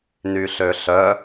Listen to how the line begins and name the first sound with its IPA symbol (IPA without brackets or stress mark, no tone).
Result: n